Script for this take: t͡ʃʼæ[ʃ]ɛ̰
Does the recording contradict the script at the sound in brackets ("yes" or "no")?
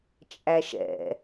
no